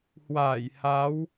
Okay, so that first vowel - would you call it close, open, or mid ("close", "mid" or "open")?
open